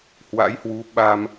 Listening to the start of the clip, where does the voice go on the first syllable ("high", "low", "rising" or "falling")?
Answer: rising